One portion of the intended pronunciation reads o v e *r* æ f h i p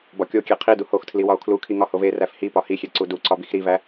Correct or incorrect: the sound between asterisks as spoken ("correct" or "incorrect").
correct